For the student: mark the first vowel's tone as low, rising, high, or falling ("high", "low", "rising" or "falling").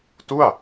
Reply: falling